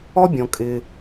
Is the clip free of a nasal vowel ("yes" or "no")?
no